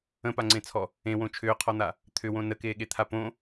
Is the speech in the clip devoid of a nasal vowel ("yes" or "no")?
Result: no